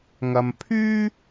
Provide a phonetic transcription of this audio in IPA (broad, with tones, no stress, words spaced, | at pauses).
ŋɐ˧m pʰyː˥